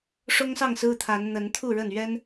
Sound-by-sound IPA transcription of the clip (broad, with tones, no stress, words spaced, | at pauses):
ʂʊ˦ŋsɑ˥˨ŋ sɹ̩˦t̪ʰa˨˦n n̪ə˨˦nt̪ʰu˥˨ɻə˥˨n ɥɛ˦n